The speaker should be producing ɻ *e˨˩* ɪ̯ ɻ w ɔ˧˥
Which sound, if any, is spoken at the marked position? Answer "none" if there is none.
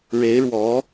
e˧˥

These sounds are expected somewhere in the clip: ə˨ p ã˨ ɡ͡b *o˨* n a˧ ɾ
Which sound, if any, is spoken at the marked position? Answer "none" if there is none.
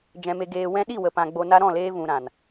o˨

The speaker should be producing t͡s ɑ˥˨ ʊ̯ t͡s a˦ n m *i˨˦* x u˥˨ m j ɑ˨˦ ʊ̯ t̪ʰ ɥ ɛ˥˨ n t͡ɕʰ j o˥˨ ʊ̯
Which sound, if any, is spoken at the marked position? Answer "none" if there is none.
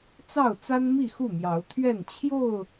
i˥˨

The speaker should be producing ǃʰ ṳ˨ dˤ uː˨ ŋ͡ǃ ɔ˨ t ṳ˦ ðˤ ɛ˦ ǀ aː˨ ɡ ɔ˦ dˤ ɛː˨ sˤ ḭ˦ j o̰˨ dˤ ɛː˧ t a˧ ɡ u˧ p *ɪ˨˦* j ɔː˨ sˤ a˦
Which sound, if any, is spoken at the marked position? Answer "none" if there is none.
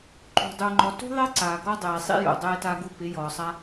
ɪ˨˦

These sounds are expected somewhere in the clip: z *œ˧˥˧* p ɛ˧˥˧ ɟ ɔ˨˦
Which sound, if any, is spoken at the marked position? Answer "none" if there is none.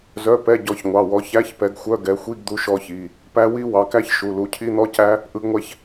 œ˧˥˧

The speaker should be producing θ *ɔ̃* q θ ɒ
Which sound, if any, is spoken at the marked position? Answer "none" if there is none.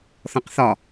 ɔ̃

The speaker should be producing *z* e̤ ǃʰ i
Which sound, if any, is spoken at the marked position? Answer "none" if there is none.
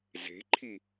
z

